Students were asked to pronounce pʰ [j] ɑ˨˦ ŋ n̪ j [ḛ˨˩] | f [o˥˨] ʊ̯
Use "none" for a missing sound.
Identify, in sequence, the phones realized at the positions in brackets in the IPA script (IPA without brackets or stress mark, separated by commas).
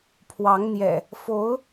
w, ɛ̰˨˩, o˨˦